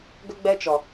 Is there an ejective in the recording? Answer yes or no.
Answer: no